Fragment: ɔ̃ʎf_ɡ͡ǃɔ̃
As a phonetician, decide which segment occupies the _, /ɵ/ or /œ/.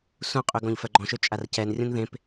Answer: œ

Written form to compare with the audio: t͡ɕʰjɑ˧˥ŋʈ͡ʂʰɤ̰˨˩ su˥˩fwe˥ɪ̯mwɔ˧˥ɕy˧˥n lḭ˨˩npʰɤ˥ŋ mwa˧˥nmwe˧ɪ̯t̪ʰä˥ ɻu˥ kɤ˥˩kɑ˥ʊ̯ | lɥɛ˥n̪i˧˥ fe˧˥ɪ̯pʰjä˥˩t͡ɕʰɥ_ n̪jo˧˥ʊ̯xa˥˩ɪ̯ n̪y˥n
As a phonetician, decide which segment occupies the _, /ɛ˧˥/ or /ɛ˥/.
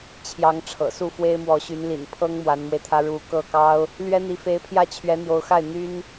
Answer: ɛ˧˥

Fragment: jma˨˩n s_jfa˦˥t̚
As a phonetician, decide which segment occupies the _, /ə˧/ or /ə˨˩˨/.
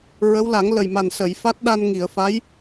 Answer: ə˨˩˨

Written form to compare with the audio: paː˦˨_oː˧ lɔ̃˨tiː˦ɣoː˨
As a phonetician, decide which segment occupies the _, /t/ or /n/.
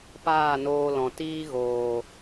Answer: n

